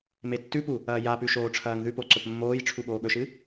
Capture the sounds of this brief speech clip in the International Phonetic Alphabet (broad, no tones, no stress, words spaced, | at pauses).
metːʉpu | ɐːjapʉ ʃoːʈ͡ʂʰɐːŋðʉpo ǀɵpmːoːjʈ͡ʂʰu ɠoːɠɵʃɨ